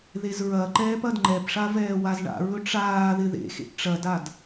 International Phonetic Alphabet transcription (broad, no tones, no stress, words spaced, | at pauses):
ðezɹɐǃɛːp ɐdŋ͡ǃɛpʂa vɛːwazɳa̰ɹɵ ʈ͡ʂaːðɪ ðḛxḛʔ ʈ͡ʂɐdad